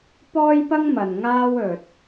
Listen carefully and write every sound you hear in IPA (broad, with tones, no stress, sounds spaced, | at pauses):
p ɔː˥ j p ɐ˥ ŋ m ɐ˨ n ŋ aː˥ w ɵ˨ t̚